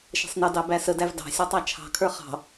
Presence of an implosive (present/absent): absent